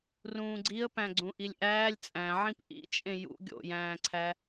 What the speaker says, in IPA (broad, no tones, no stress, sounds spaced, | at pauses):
r ũː ɡ͡ǀ i ə̯ p æ̃ ɡ͡ǀ ũ ʔ i lʲ ʔ æː lʲ t͡sʼ æ̃ ʕ ĩ p ʔ ḭ t͡ʃʼ ẽ j ṵ ɡʲ o̰ j æ̃ː ǀʰ æ